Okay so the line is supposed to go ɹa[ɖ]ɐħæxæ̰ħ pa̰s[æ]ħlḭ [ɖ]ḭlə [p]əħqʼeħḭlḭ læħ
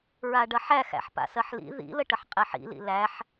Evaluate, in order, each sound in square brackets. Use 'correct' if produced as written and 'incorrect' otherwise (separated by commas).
correct, incorrect, incorrect, incorrect